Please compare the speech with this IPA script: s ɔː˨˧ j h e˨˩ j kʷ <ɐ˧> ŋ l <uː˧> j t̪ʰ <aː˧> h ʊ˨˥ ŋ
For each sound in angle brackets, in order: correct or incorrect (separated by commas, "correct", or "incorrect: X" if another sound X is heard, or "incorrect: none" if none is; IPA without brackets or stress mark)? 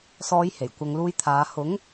correct, correct, incorrect: aː˨˧